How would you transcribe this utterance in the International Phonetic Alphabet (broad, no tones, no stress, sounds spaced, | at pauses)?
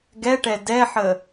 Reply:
ɡ ɛ ʈ ɛ d ɛ ħ ə